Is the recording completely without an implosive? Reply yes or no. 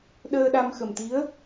no